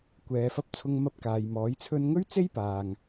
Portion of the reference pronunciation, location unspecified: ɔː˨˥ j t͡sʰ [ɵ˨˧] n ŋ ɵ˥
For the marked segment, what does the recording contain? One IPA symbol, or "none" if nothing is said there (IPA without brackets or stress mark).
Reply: ɵ˧